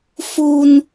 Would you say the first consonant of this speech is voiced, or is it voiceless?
voiceless